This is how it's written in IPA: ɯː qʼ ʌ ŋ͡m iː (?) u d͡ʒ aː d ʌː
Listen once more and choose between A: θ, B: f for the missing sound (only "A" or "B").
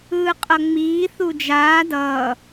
A